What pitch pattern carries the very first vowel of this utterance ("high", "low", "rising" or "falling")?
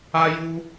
high